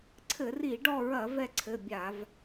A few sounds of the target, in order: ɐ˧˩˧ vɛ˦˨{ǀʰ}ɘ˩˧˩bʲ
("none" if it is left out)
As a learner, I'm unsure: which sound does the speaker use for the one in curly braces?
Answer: ǀʰ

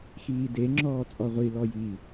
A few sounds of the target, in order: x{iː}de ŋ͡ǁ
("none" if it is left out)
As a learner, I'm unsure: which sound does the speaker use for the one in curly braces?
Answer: iː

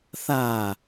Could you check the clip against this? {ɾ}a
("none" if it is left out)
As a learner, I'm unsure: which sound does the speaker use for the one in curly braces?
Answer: θ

